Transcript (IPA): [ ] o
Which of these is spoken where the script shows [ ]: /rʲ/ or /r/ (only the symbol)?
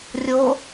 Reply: rʲ